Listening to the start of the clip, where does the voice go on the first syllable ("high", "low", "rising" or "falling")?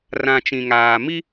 low